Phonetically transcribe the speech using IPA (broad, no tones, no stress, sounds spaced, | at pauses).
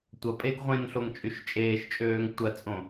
tʷ ɐ pʼ e ɡ ʁʷ ẽ n ɬ o ŋ t͡ʃʼ y ʃ t͡ʃʼ eː ʃ t͡ʃʼ øː ŋ tʷ ɐ t͡sʼ õ